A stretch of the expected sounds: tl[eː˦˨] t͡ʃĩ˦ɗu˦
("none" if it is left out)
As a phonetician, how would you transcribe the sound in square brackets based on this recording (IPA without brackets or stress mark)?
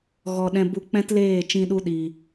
eː˦˨